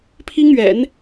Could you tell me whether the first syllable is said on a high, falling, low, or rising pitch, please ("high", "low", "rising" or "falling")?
high